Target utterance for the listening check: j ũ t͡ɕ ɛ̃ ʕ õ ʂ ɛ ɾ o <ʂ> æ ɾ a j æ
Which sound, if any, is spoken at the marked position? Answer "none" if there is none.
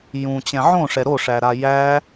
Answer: ʂ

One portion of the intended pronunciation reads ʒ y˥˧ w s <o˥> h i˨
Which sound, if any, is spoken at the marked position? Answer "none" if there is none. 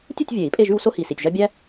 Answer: o˥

